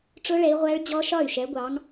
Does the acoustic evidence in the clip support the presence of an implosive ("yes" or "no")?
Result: no